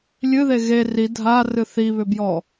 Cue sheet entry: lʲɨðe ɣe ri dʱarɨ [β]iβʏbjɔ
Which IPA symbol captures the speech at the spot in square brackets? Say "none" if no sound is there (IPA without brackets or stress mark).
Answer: θ